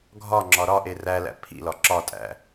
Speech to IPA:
ɡʱɒŋ͡ǁɒ ɾɒʔe rælæ̰ pʰḭlɒ ǁɒtʼæ̰

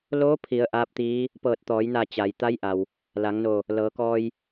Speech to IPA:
loː˧˥pʰi˩˧ə̯ ʔaː˧˥p̚t̪iː˧˥ | pɤː˧˩t̚t̪ɔː˩˧jna˧˩ t͡ɕa˩j t̪a˧˥jʔa˩w | la˩˧ŋno˧˩ | lɤː˩˧kɔː˧j

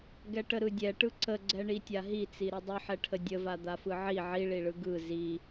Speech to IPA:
ɡɛʈəɾɯdʲɛ ʈɯǀəɡ͡ǀɛ ɳitʲaɦit͡si ɾidˤɯħɛʈʰə dʲəva d̪afɯʕi ʕiɭiɭɯ ɡɯ zi

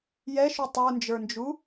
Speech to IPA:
jɛʃu tˤə˞nd͡ʒə˞nd͡ʒu

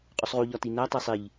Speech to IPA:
qʼusˤʁu ʎɒtinæ tˤesˤiʎ

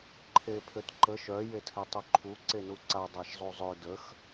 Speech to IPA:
ǃʰepʰøtǃə ʃœ jetʰɛtˤøǃʰu ǀenuǀa dˤaʃzˤuzˤø dəx

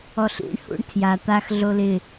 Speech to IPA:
ɔɬḭɳ hṵɳtʰja t̪ax ɮolɪ

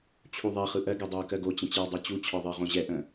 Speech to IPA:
t͡ɕʰuðˤɛ χɯʔɜɡ ɛdˤoə̯kɜɡo t͡ɕə̃t͡ɕɜwdˤɜt͡ɕu t͡ɕʰɒðˤɜʁõʑɛ ʔə̃

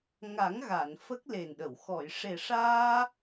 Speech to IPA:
ŋa˨˩˦ŋɣa˨˩˨n fə˦˥k̚le˨˩nɗə˨˩˨w xɔ˨˩˨jʂe˨˩ʂaː˧

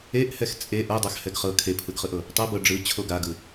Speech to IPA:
eʔ hɛxt͡sʼe ʔɤdˤax hɛɡχɤ kʰepʰɯɡχɯʔɤ | tˤɤbɤ ɖ͡ʐɯ t͡ɕʰoɡaɡɯ

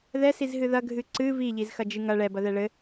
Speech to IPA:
ðɛsizɦɨ ðɐɡʱɨ ǀɨ viʎizxɐ d͡ʒɨŋɐ ɭɛbɐðɛ ɭɘ

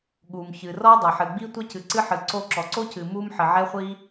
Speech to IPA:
ɠu˩mçɨ˩ rɔ˥ dˤɐ˩ħɨ˩ɡ͡bi˥tʷɐ˥ cɨ˩ǀɨ˥ħɨ˩ ǀo˥ǁɔ˩ ǀo˥cɨ˩ mu˥mħɘ˩ʕɛ˥χʷi˥

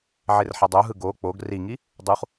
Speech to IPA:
ʕerħʌdˤoɦɯ ɡo k͡poɡ riŋi | dˤuχ

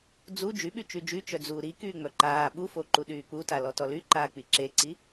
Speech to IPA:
d͡zu d͡ʒyɓy t͡ʃyd͡ʒy t͡ʃœd͡zuːɾikyː ŋ͡mœǃaː ɓufoǃu ɗyːk͡puta lɔtɔlyǃaː k͡piǁeǀi

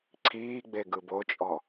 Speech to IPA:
ǀʰiːɡ͡beɡɯb ot͡ʃʼɔ

